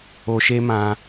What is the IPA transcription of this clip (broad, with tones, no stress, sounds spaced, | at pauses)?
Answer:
o˧ ʃ e˦ m ã˧